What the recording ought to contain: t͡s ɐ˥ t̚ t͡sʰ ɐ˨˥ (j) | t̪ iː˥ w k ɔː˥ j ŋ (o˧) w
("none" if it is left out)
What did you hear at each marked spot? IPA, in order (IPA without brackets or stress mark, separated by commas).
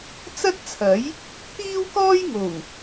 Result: j, o˨˩